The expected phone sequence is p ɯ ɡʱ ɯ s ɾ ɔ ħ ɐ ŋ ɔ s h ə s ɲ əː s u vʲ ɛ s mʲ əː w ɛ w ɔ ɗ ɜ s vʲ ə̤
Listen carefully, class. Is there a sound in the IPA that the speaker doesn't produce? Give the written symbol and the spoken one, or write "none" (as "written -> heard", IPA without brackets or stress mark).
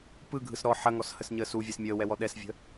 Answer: ɜ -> ɛ